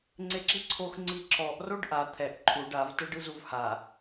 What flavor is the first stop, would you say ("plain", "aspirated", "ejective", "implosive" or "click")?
click